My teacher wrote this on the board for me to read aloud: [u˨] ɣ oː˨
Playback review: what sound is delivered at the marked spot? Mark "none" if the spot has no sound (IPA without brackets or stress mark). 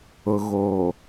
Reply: ʊ˨